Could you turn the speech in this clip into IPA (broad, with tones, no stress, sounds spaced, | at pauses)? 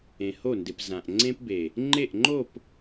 ẽ˨ h o˦˨ n d ɪ˨ p z ã˨ ʔ ŋ͡ǀ ẽ˦ p b e˨ | ŋ͡ǃ e˦˨ ʔ ŋ͡ǃ o˦˨ p